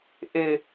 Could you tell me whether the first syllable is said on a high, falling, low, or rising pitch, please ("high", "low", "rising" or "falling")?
high